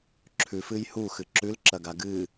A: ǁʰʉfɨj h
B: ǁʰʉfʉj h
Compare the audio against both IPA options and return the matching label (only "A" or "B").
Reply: A